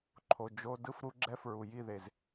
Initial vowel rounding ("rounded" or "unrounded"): rounded